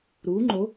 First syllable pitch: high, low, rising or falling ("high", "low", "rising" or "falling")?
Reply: rising